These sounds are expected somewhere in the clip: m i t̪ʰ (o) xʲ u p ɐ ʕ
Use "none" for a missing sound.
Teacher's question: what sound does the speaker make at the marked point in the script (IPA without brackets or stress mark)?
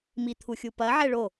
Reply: u